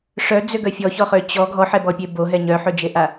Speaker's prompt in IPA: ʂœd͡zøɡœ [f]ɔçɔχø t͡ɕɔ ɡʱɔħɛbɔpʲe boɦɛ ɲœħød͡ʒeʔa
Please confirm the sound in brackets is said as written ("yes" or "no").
no